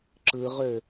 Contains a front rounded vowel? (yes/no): yes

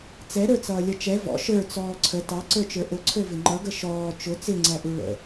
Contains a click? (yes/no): yes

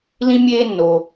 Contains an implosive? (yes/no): no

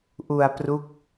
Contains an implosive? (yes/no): no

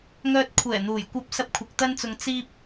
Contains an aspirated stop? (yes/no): yes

